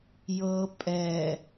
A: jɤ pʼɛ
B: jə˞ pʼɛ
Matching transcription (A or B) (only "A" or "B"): A